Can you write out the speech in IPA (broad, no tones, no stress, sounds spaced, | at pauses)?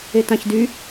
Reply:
e t ã ç d y